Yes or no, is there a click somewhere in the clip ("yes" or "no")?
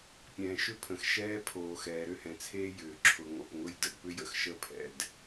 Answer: yes